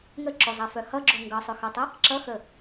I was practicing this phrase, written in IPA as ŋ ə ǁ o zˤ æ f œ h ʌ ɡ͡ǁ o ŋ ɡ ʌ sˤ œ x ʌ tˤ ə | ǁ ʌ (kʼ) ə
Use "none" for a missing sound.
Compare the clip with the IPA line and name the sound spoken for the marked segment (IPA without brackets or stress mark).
x